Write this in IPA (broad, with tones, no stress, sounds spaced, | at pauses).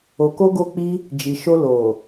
o˧ k o˦ ɡ o˧ k͡p i˧ | d͡ʒ i˨ ʃ o˧ l o˨